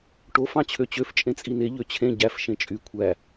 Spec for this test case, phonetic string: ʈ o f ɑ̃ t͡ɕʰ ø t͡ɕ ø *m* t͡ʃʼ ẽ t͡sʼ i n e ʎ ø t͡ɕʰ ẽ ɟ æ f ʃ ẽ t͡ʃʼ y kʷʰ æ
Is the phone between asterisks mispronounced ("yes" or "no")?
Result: yes